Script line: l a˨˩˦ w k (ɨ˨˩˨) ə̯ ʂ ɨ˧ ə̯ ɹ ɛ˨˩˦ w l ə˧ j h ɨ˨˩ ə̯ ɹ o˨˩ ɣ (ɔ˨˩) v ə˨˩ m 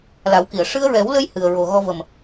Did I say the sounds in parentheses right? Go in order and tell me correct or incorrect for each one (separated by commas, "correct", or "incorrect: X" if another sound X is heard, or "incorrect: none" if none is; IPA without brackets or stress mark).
incorrect: i˨˩˨, incorrect: ɔ˧